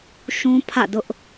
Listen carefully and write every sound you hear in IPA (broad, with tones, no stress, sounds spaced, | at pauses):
ʃ ũ˦ pʰ ä̰˦˨ d ʊ˦ ʔ